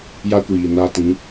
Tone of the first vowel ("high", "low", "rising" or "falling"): high